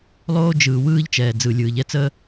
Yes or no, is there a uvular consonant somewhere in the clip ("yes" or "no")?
no